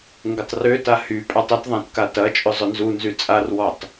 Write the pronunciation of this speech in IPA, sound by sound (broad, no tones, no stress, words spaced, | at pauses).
ŋɡʊtˤrøta hy pʼatˤʊtðˤãt katɐt͡ʃʼʏ zˤʊnzunzy t͡sʼarwɔtˤ